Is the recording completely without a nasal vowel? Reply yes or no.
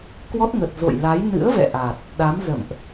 yes